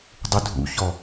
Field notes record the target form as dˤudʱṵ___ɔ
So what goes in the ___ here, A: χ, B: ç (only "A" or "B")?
B